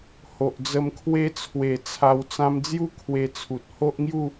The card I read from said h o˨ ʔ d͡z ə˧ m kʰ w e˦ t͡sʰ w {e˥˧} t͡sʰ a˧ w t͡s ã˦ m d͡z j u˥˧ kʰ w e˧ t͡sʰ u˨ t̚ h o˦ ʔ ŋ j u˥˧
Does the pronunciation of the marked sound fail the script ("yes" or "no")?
yes